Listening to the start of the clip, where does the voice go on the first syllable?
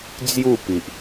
falling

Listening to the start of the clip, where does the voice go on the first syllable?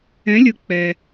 rising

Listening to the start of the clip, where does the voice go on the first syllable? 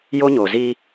high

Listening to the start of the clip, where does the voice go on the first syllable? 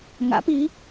rising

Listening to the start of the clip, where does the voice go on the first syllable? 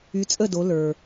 rising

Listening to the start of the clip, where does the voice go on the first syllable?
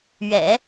low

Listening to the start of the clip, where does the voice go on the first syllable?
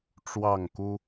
falling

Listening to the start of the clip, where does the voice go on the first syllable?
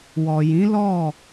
low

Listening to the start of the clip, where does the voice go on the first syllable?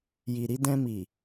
low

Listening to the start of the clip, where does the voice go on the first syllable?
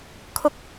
high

